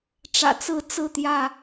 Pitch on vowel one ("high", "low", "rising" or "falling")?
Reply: low